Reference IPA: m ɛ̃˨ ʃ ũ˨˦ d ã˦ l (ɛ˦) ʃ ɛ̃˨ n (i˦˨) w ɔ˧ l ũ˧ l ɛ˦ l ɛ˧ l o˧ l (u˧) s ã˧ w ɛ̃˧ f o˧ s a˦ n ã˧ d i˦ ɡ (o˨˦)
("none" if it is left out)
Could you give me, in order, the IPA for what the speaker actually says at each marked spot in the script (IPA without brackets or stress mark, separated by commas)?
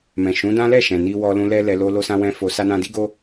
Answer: ɛ˦˨, i˧, o˧, o˦